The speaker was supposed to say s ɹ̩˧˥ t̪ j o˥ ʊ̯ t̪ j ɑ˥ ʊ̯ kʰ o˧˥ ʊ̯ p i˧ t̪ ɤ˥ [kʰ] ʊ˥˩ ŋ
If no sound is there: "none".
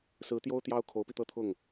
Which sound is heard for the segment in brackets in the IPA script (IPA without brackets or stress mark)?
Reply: t̪ʰ